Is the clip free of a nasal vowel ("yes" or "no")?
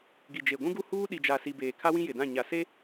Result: no